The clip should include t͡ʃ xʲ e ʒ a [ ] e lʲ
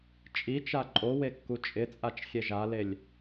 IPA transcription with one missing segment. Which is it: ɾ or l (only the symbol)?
l